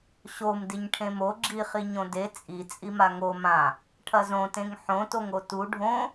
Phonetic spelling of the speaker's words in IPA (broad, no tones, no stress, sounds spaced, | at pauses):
ɕ o m d i ɲ ʈʰ ẽ m o ɡ͡ǁ i χ i ɲ õ d e t͡sʼ i t͡sʼ i m a ŋ o m ã | ʈʰ ɐ z õ t ẽ ŋ ħ õ t o ŋ o t u ɖʱ õ